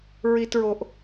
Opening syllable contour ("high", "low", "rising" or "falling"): low